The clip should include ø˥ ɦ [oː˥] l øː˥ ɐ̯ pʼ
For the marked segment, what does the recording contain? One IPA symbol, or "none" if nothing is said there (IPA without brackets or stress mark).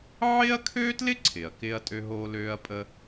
oː˥